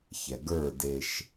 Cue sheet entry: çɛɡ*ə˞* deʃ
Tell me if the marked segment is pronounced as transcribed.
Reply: yes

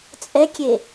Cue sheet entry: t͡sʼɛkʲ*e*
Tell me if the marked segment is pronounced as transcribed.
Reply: yes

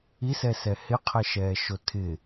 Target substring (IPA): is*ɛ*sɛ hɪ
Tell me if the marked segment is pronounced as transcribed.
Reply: yes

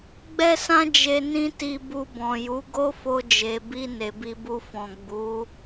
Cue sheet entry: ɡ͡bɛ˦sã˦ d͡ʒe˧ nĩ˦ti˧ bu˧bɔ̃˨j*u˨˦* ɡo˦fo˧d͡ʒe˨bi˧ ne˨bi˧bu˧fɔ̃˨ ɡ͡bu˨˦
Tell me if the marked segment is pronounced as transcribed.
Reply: yes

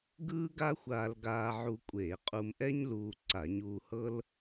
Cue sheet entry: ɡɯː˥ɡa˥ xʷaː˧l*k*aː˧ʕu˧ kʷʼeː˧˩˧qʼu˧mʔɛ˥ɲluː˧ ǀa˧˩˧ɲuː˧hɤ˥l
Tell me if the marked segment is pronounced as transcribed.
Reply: no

